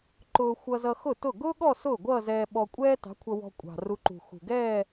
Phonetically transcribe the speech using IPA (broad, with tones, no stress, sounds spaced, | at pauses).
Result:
ǃ ʊː˧ xʷ ʌ˧ z ʌ˧ x ʊ˥˩ t ʊ˥˩ ɡ ʊː˥ ɠ ɔ˥˧ s ʊː˥˩ ɡʷ ʌː˥˧ z ɛː˧ ɓ ɔ˧ kʷʼ ɛː˥ t ɑ̤˨˥ kʷʰ ʌ˧ w ɔ̤˧ kʷʼ ɑ̤˨˩ r u˧ ǃ ṳ˨˩ x ṳ˨˩ ɡ ɛː˥˧